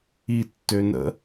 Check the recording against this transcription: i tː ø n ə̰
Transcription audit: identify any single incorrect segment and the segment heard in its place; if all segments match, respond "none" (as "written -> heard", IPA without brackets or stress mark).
none